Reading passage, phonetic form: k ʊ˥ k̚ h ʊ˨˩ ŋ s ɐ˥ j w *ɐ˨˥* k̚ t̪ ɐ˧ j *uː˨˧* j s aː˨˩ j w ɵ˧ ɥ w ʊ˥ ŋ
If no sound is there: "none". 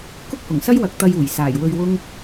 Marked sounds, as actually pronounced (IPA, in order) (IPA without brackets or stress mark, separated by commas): ɐ˨˥, uː˨˩